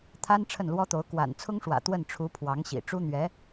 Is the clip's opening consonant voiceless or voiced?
voiceless